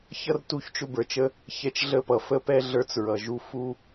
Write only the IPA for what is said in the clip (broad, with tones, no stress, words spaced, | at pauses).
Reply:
çʌ˦r tu˦˨çt͡ʃʊ˦bə˞˨t͡ʃə˦ | çɛ˧t͡ʃɮə˦˨pʌ˨ fə˦pɛ˦ɮə˞˧t͡s ɹʌ˨ʒu˧ fu˦